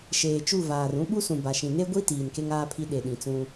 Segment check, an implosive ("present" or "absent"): present